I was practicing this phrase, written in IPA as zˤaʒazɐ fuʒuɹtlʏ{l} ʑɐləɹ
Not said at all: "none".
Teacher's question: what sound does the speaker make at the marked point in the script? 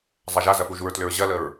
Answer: ɹ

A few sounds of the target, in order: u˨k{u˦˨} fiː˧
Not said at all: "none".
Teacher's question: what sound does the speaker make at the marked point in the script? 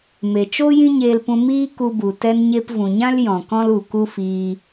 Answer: u˦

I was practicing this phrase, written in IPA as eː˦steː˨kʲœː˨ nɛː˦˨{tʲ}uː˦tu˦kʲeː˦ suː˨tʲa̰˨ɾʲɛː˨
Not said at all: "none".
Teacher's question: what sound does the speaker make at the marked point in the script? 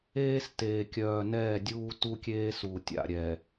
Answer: dʲ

